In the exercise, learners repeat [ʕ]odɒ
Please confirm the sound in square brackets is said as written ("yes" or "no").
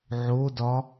yes